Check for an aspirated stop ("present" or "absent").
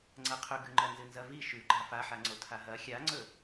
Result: present